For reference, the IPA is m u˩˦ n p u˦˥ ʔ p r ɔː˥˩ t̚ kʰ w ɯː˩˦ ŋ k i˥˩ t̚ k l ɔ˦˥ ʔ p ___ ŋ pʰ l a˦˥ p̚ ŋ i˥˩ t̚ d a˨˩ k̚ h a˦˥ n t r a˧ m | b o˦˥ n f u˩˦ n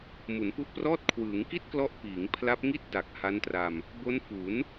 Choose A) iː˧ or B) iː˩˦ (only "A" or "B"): B